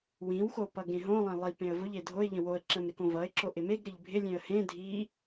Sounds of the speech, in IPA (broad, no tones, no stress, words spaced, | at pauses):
wĩwxo pʌɡẽɦõlˠẽ lˠipẽə̯ vʊʎe dʱoɪ̯ʎə̃ woə̯ǁə̃m ɾɪkõvʌɪ̯ǁo ʔɪmeɡɾɪʎ bʱɪlʲẽə̯ hẽ dʱi